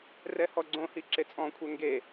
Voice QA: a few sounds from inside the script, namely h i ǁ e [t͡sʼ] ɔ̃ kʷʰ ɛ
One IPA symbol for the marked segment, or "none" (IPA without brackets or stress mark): t͡sʼ